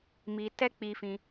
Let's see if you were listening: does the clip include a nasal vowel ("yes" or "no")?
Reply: yes